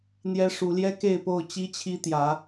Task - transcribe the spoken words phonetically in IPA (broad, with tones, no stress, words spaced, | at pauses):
n̪jɛ˦ʂu˨˦ ljɛ˦ke˥˨ɪ̯po˥˨ʊ̯ t͡ɕi˦t͡ɕʰi˦t̪jä˨˦